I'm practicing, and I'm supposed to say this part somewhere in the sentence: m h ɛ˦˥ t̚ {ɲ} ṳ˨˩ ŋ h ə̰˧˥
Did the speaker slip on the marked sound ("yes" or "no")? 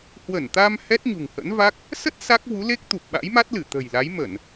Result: no